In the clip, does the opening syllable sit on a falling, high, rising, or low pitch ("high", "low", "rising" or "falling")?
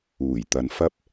low